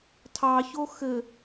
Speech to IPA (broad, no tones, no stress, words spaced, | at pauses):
tʰɑço xɘ